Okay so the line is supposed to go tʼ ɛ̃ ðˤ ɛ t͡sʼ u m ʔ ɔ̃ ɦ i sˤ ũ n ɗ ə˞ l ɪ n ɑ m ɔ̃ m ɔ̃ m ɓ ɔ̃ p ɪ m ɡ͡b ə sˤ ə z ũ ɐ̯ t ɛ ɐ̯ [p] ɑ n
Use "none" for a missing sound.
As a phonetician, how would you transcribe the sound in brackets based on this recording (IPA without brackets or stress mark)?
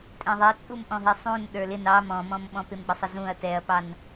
p